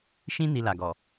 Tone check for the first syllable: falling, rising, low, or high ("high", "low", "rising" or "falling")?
high